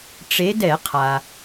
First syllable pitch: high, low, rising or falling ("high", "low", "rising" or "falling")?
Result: rising